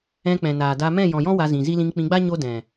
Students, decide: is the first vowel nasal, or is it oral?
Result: nasal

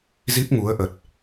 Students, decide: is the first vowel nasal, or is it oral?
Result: oral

